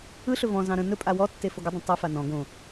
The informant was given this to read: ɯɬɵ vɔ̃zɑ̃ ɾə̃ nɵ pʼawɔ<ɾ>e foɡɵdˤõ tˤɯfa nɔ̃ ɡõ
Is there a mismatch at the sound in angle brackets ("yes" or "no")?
yes